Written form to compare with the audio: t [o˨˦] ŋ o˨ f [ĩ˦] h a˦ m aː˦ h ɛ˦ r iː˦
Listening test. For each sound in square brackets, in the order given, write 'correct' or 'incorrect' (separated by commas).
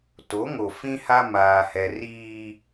correct, correct